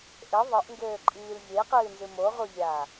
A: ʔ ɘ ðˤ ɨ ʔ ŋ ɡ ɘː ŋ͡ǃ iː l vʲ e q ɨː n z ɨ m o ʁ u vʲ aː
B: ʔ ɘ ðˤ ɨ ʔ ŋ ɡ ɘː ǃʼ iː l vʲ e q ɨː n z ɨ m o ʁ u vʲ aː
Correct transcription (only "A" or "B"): B